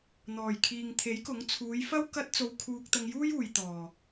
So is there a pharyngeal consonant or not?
no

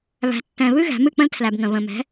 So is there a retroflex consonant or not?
no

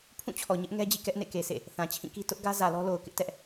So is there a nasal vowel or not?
yes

